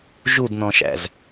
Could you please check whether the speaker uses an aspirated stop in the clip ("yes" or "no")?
no